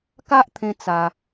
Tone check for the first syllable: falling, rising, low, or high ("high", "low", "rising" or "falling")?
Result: high